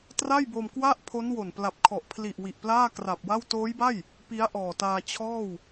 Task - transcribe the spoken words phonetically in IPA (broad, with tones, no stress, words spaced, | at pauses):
tra˥˩jbo˧m kwa˥˩ʔpʰo˦˥n wo˨˩npla˨˩p̚kʰɔ˨˩ʔ pʰli˨˩ʔ wi˨˩ʔplaː˥˩kra˨˩p̚wa˥˩w toː˦˥jba˥˩j | pi˦˥a̯ʔɔː˨˩taː˧t͡ɕʰɔː˥˩w